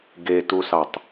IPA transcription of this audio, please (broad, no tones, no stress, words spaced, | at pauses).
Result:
ɡetusɑtˤ